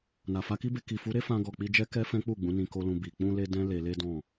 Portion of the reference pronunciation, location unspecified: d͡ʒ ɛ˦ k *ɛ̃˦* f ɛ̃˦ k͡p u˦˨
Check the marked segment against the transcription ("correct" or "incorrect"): incorrect